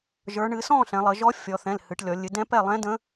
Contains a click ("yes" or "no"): no